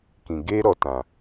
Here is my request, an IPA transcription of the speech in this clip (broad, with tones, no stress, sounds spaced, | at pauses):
k ĩ˨ ɡ eː˦ ɾ ɔ˧ t ã˨